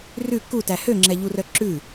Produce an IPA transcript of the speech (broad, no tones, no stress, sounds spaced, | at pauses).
r ʉ k u t æ h ø ŋ͡ǁ ɛ ʎ u r œ ǁ ʉ